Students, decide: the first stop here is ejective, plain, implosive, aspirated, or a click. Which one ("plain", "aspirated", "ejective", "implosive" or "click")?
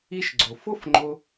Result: click